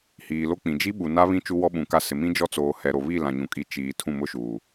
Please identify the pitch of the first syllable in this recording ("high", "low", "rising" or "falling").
low